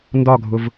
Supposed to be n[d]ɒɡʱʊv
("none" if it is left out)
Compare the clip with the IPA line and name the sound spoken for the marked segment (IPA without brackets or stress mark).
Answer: d